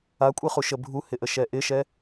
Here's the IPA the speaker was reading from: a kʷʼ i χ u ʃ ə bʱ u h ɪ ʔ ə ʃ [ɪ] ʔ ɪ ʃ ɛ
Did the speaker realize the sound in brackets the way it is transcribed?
no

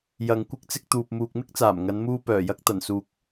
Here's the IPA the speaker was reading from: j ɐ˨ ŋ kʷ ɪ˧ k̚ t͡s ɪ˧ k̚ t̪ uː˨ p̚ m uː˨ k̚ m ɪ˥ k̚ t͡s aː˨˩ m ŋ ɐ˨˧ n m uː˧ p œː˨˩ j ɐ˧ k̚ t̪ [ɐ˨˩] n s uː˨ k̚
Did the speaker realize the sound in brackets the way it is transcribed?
yes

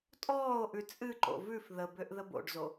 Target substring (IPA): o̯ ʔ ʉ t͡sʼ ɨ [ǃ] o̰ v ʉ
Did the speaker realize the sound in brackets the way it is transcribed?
yes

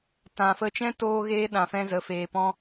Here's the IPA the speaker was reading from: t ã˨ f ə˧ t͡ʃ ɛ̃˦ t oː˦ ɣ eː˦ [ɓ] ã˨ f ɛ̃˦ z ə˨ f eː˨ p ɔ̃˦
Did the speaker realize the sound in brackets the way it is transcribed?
no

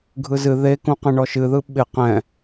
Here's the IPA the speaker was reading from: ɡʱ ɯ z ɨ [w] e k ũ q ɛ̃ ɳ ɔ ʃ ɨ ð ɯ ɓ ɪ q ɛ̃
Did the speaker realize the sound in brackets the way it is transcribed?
no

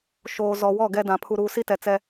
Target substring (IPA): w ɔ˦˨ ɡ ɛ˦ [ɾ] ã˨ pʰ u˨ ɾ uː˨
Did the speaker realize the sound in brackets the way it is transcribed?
no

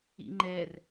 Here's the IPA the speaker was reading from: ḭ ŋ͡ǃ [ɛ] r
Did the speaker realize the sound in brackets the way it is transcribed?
yes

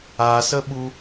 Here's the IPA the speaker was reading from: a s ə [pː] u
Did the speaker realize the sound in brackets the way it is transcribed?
no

